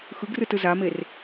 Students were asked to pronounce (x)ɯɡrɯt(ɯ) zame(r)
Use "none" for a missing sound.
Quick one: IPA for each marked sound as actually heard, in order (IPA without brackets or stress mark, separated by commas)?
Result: x, ɯ, r